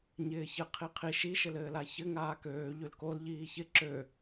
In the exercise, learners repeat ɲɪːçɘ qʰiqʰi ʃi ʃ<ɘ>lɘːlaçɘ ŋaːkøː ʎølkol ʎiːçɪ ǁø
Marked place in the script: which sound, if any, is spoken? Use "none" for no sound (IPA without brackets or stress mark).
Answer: ɘ